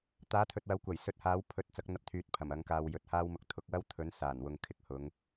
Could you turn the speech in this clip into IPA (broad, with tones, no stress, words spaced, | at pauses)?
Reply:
t̪aː˨˥t̪ʰɵ˨t̚wɐ˨˧wkʷɐ˨˩j sɵ˧t̚haː˨˥w pʰɵ˨˥t̚ t͡sɐ˨˥k̚n̪ɐ˨˥p̚t̪ʰyː˨t̚ pʰɐ˨˩m ɐ˨˥ŋkaː˧wjɵ˨˥t̚haː˥w mʊ˨k̚t̪ʰʊ˨˥k̚ wɐ˥wt̪ʰɵ˨˥n saː˨˩nwʊ˨ŋkʰɪ˨k̚hʊ˨˧ŋ